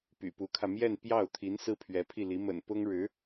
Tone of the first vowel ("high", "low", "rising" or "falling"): low